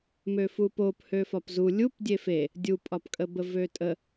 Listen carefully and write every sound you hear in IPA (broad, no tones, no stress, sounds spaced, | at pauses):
m ø f u p o p h ø f ɒ p z u lʲ u p dʲ e f e | dʲ u pʼ ɒ p kʼ ə b ə v ø tʼ ə